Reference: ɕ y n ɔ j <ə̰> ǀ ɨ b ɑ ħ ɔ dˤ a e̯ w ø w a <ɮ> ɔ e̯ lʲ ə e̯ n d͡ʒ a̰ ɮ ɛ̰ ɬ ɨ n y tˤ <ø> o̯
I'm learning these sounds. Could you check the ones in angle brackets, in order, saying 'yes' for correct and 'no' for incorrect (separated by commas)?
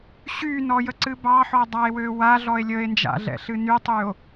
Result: no, yes, no